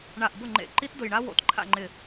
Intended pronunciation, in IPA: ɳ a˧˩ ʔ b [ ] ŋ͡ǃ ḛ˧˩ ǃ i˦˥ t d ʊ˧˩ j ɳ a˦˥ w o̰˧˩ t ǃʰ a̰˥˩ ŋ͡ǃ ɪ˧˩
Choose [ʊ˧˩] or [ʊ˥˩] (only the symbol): ʊ˥˩